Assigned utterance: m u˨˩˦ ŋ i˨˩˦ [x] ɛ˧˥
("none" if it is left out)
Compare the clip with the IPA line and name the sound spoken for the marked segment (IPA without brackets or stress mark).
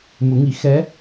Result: x